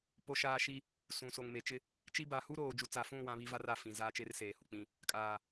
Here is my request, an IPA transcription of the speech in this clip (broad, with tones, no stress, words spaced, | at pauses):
po˦ʃaː˦ ʃi˦ | sũ˨so˨ŋme˨t͡ʃɪ˦ | t͡ʃi˦ba˨˦ hu˦ɾoː˨ d͡ʒu˨t͡sa˨fũ˦˨ wã˦βi˦va˦r a˨fĩ˨ zaː˦t͡ʃe˦rseː˨hu˨ k͡pĩ˨ | kʼaː˨